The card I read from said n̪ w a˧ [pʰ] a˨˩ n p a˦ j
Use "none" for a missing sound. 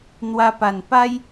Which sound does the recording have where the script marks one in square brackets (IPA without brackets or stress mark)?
p